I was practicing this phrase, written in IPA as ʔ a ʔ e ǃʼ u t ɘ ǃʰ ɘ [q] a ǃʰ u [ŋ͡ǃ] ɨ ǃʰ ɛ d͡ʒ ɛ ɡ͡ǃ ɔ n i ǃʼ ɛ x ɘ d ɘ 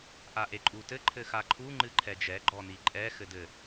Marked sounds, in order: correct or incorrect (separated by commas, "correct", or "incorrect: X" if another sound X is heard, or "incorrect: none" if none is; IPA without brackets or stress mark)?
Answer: incorrect: x, correct